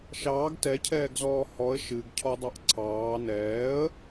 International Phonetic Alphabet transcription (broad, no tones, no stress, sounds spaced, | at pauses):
ʃ ɑː ɡ t ɛ cʰ ɛː ɡ z ɔː h ɔ ə̯ ʃ ɨ ɡ cʰ ɔ dˤ ɑ ʔ ǀʰ ɑː n ɛː ə̯